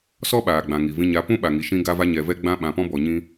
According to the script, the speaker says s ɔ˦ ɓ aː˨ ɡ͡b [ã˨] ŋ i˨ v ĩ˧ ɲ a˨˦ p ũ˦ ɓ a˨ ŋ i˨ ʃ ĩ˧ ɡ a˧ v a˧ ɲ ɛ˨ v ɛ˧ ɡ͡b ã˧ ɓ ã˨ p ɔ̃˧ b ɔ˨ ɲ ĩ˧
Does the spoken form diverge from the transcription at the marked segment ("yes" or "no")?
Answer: no